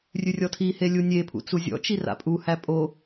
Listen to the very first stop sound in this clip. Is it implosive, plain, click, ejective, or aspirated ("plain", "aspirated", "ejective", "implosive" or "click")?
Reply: aspirated